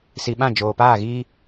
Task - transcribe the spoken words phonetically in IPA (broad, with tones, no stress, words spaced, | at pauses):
si˨ɓã˦˨ d͡ʒoː˨ paː˦˨ɣiː˦